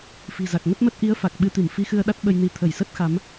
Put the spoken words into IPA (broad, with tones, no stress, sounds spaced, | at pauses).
f i̤˨˩ z a˨˩ k̚ ŋ ə˦˥ t̚ m ə˦˥ t̚ ʔ i˨˦ ə̯ f a˨˩ k̚ ɓ ɨ˧ t̪ i˧˩ m f i˧ x ɨ˧ ə̯ ɗ a˦˥ t̚ ɓ ə˧ j n i˧ t̪ʰ ə˧˩ j s ə˦˥ t̚ x a˨˦ m